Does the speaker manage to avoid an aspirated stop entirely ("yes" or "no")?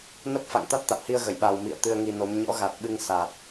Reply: yes